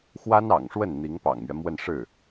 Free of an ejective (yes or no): yes